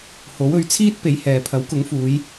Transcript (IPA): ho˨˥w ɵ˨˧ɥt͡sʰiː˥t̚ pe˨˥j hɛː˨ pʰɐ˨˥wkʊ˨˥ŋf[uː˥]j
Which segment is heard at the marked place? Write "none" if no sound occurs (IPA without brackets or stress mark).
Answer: uː˨˧